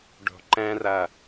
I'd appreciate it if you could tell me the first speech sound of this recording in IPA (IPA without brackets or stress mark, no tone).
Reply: ɖ